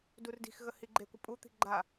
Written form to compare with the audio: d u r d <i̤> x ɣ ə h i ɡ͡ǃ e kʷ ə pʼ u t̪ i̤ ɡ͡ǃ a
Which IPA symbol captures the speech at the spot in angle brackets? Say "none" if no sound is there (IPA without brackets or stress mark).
i̤